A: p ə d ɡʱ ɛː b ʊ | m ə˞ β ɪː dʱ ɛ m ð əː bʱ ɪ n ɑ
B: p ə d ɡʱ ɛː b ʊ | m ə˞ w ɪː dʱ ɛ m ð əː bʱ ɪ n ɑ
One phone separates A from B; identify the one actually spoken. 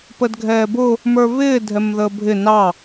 A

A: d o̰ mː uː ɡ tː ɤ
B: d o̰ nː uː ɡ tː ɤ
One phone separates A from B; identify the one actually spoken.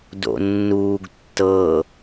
B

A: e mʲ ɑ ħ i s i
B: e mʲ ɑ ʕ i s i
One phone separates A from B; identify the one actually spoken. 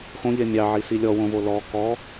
B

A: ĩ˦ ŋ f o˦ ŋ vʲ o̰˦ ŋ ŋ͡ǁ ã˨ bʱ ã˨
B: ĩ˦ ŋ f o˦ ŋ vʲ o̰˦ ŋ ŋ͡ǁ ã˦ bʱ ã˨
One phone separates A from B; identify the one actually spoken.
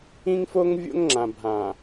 A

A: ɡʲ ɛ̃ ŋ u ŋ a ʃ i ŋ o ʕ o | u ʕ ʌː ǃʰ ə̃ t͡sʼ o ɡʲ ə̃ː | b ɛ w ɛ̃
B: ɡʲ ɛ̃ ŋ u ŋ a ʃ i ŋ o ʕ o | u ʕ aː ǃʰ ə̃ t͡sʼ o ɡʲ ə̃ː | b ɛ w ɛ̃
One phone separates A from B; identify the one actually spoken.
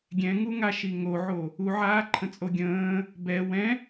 B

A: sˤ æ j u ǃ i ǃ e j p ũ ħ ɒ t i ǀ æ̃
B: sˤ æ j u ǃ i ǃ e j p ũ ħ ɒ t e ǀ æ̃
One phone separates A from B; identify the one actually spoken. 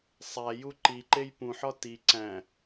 A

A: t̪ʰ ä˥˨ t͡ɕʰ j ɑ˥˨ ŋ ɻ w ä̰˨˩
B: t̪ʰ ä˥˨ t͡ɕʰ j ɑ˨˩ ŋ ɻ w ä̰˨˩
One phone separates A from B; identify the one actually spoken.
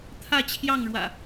A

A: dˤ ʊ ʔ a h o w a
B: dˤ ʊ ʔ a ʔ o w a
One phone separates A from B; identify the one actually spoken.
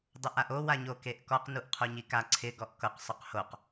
B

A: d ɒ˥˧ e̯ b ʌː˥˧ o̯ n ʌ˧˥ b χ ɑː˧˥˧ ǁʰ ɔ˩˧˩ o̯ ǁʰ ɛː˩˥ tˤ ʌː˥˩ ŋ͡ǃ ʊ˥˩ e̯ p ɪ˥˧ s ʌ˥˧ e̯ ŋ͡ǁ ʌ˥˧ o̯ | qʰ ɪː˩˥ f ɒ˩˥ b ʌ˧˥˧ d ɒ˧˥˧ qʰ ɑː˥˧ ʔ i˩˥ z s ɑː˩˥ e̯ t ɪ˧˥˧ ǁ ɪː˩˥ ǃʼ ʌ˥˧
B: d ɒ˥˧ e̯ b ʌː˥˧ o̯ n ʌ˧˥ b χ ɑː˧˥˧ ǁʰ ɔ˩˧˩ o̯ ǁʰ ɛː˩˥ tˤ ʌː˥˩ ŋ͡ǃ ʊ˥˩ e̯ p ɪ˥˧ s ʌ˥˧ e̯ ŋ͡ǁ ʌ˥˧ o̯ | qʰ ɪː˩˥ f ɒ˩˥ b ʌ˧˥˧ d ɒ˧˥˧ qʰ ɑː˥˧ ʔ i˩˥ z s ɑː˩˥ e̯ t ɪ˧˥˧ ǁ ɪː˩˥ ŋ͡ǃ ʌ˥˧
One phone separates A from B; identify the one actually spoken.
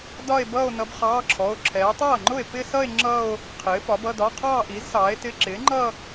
B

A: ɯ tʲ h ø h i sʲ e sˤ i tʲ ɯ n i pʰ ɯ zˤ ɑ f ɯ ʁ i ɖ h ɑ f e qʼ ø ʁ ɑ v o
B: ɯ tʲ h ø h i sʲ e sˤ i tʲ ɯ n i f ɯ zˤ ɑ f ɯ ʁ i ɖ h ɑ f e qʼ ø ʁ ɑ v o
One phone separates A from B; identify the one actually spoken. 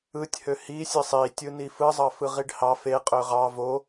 B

